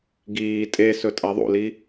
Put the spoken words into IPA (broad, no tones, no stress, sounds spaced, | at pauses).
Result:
ɡ iː tʼ e s ɵ tʼ a ðˤ ṵ l i